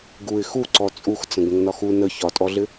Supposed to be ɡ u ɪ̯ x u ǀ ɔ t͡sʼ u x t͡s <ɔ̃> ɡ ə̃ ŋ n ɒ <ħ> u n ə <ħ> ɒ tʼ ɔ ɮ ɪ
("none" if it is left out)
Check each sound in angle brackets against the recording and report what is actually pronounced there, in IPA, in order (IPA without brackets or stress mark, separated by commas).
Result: ə̃, x, ç